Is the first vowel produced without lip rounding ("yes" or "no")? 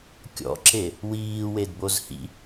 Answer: no